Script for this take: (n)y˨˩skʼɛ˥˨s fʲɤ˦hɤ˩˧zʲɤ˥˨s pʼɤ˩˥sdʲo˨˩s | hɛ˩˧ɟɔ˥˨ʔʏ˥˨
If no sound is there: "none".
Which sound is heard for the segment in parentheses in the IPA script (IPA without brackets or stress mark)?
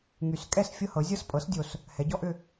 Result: ŋ